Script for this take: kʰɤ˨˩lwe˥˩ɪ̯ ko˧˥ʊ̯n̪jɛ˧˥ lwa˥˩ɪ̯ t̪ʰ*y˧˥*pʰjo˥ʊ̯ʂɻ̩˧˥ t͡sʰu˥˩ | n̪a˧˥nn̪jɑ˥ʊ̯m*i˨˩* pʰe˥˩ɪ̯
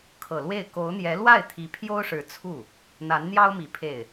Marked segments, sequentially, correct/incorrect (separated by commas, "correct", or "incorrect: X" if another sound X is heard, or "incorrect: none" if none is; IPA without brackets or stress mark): incorrect: i˧˥, correct